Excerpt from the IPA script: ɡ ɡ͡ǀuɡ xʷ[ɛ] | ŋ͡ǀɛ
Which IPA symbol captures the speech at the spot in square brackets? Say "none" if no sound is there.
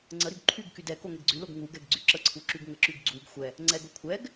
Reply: ɛ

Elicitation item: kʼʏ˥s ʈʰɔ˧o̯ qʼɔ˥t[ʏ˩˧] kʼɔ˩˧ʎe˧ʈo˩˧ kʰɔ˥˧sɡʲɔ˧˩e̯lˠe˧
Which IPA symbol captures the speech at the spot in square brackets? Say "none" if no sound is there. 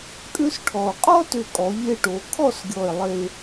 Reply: ʏ˧˩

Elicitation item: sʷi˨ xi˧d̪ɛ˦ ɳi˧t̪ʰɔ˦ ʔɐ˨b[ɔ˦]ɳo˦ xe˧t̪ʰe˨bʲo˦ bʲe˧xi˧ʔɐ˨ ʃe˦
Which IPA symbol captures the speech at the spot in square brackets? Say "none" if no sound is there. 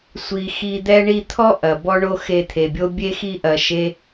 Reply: ɔ˦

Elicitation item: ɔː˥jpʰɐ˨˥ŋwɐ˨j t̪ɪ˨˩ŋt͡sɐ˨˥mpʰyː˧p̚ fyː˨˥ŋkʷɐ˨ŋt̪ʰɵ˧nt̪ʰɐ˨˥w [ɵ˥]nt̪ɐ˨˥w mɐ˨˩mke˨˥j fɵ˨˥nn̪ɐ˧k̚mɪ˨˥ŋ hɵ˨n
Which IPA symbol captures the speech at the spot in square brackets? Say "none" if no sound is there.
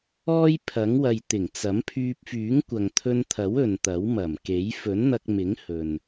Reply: ɵ˨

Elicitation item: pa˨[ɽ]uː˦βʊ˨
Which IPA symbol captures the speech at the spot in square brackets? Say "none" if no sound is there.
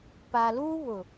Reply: l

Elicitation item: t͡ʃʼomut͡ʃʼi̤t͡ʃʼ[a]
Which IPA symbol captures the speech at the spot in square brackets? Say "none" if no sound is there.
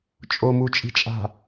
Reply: a̤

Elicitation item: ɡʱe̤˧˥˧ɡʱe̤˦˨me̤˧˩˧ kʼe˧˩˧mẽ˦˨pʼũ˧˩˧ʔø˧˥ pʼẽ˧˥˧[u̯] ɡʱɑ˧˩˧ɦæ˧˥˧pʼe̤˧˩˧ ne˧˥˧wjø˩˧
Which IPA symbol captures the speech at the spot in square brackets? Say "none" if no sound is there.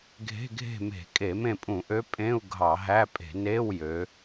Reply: u̯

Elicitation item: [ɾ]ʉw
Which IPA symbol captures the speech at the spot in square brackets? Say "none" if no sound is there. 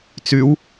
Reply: t͡s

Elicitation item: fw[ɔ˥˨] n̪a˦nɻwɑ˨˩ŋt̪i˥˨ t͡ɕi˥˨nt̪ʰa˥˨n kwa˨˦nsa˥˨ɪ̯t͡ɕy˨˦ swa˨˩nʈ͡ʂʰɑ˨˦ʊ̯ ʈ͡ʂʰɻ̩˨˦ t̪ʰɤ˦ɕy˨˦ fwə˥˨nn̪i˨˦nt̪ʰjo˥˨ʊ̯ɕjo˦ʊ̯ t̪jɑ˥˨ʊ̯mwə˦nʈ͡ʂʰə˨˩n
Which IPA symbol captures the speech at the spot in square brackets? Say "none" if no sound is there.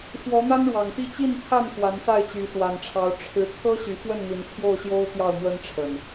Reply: ɔ˨˦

